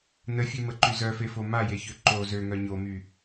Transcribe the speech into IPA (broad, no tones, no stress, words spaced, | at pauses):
nəfʲøməǃy zœfefo majeçø ǃo zøŋœ ɲomy